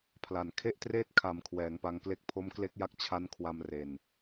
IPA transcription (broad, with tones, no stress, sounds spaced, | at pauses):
pʰ l a˨˩ n kʰ e˥˩ ʔ t r eː˥˩ t̚ kʰ a˩˦ m kʰ w ɛː˩˦ ŋ p a˧ ŋ k l e˥˩ k̚ pʰ o˦˥ m k l e˦˥ k̚ j a˦˥ k̚ t͡ɕʰ a˦˥ n kʰ w a˧ m r e˨˩ n